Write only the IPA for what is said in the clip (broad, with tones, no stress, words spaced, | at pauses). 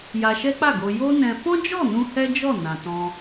ja˧ʃɛ˦k͡pa˦˨ɡo˧ jo˦nɛ̃˧ fɔ̃˦d͡ʒɔ˦˨nũ˧ hɛ˦d͡ʒɔ˦˨nã˨ tɔ̃˧